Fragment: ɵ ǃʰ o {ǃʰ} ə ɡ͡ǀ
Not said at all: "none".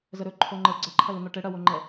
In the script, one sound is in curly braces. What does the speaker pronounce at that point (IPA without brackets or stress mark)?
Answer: ŋ͡ǃ